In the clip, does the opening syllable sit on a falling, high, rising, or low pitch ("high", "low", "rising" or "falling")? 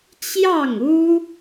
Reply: falling